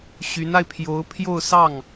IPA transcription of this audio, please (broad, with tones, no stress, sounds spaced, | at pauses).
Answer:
ɕ y˧˥ n a˧ ɪ̯ pʰ j o˧˥ ʊ̯ pʰ j o˥˧ ʊ̯ s ɑ˥˩ ŋ